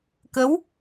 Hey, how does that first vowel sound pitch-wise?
rising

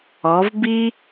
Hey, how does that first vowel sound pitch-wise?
rising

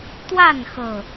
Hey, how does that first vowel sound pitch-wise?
falling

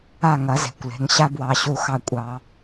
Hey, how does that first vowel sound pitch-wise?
falling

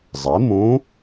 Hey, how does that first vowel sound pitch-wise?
rising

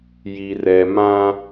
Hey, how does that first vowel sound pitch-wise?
low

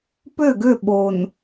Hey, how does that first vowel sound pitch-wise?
falling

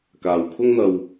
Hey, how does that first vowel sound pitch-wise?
low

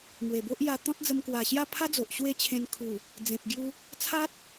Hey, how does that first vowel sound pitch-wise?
low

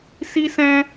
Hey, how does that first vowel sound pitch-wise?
high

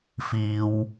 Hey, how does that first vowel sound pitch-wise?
high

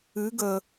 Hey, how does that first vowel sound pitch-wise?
rising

